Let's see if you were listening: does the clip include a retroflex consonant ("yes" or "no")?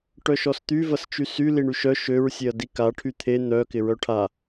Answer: yes